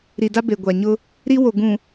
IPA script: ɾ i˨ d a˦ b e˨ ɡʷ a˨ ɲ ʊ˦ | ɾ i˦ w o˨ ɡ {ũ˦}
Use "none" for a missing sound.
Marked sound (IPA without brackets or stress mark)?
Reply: ũ˨